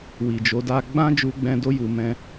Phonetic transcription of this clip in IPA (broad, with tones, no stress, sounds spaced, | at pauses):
w i˨ d͡ʒ o˨˦ d a˦ ɡ͡b ã˦ d͡ʒ u˧ ɡ͡b ɛ̃˧ d o˧ j u˨ m ɛ̃˧